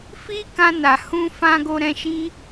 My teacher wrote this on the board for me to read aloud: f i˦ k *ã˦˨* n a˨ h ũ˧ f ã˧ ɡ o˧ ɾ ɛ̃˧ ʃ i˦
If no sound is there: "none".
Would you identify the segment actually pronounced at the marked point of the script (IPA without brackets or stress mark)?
ã˧